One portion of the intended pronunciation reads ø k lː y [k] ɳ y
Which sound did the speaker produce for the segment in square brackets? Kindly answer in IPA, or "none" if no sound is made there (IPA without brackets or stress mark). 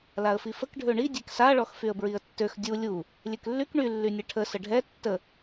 k